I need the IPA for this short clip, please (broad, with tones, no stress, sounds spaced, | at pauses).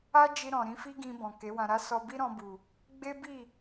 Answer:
a˦ d͡ʒ i˧ ɾ ɔ̃˨ ɾ ĩ˨˦ f i˦ ɡ ĩ˧ b ɔ̃˨ k e˨˦ w ã˧ ɾ a˦ s ɔ˧ b i˦ ɾ ɔ̃˧ b u˨ | ɡ͡b e˦ b i˦˨